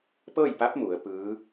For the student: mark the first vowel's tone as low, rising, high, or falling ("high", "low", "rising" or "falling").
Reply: falling